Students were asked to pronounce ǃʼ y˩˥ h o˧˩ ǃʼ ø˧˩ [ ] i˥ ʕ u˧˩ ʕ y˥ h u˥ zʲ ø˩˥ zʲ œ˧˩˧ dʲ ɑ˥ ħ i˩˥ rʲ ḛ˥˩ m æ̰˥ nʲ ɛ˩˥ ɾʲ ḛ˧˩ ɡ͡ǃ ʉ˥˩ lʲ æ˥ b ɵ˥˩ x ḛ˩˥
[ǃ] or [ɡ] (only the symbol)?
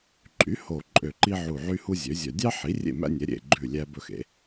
ǃ